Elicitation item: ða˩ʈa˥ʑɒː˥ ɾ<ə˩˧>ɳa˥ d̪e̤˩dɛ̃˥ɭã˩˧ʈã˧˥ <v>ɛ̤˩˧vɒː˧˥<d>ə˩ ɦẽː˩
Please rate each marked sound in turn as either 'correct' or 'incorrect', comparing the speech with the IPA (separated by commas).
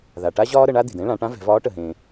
correct, correct, incorrect